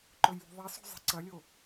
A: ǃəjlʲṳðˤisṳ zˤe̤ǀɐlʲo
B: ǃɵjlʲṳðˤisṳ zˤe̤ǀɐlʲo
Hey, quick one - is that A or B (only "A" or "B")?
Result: B